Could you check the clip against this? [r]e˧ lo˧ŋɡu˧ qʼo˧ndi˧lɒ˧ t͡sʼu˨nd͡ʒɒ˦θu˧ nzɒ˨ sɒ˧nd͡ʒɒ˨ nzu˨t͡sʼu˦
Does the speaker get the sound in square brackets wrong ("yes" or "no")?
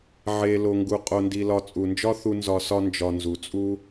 yes